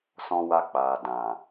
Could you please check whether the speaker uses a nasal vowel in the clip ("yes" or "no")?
yes